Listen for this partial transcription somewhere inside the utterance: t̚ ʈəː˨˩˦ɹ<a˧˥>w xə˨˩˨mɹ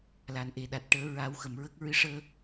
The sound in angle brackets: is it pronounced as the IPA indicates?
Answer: no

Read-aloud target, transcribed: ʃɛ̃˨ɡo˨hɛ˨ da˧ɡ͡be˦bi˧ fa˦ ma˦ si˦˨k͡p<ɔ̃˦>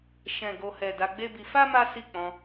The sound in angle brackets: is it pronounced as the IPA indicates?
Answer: no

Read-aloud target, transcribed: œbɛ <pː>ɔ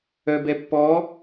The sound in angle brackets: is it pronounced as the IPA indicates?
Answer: yes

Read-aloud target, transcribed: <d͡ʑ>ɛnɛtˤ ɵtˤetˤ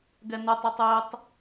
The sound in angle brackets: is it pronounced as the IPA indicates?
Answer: no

